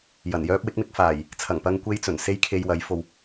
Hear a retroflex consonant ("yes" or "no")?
no